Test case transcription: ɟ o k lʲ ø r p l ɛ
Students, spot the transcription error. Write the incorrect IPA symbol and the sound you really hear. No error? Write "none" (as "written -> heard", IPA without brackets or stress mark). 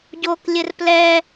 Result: ø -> ɘ